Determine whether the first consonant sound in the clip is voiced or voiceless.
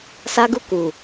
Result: voiceless